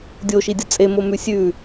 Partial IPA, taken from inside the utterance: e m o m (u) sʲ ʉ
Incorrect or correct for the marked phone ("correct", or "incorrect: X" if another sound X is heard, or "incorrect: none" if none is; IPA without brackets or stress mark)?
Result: incorrect: ʉ